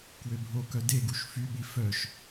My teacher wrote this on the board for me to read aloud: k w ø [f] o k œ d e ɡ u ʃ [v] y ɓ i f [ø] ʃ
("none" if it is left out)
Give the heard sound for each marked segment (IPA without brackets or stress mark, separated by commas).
bʱ, f, œ